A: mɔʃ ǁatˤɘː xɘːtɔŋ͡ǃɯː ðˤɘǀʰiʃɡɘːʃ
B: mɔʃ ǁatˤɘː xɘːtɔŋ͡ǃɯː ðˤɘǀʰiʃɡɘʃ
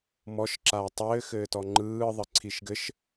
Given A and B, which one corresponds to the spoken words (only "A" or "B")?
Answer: B